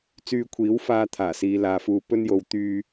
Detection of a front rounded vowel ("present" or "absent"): present